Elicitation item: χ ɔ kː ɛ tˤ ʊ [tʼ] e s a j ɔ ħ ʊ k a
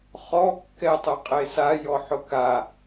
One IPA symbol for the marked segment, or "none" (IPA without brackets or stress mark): qʼ